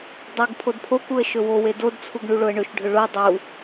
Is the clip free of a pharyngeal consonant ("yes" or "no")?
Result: yes